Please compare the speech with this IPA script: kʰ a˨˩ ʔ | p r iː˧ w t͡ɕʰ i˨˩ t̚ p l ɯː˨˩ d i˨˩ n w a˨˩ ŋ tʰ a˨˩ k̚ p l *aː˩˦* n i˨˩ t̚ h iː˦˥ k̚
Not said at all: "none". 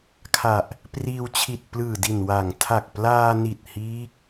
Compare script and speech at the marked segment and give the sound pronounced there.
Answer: aː˧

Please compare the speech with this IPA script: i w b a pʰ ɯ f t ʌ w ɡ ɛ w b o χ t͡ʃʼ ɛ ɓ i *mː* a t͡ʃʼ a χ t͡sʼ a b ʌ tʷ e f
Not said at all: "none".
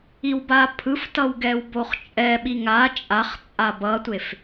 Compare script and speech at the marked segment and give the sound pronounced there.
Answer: ŋ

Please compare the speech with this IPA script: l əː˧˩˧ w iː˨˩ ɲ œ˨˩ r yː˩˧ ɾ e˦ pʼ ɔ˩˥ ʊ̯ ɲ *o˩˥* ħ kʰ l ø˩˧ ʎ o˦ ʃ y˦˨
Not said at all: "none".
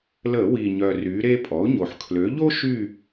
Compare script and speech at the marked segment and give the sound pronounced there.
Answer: o˨˩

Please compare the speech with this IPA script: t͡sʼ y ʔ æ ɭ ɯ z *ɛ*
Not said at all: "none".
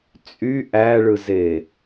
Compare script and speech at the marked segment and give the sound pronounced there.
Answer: e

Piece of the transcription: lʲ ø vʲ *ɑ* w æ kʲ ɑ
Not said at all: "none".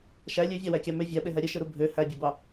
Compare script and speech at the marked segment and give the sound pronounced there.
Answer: ɑ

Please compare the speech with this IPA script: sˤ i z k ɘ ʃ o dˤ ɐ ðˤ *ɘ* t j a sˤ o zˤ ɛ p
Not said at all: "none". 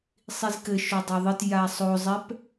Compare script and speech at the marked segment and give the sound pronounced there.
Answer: ɘ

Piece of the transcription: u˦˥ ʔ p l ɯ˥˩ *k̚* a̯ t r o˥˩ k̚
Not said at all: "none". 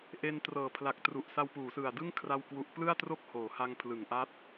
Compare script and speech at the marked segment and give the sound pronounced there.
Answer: none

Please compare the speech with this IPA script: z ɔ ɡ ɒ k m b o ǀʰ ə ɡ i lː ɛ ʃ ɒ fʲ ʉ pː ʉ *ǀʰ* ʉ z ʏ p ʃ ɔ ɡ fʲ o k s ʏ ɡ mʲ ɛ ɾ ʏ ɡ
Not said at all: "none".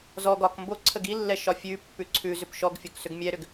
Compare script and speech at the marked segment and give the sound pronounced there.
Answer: ǀʰ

